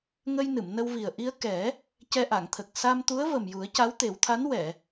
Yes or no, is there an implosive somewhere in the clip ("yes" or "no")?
no